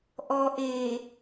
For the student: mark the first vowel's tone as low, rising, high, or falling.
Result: low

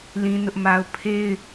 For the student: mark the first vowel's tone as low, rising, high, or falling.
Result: high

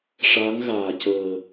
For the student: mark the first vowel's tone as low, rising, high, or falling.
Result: rising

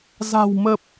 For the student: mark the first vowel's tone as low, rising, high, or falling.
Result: low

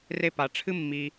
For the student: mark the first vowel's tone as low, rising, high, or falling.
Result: high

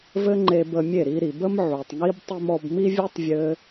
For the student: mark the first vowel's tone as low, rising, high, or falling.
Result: high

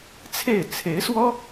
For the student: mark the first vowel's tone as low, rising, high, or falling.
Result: falling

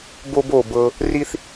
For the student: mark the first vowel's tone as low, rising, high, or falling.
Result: high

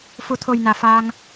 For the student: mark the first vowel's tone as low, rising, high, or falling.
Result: low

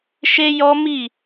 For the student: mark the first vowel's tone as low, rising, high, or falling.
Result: high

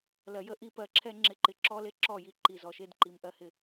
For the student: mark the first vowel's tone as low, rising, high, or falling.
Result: low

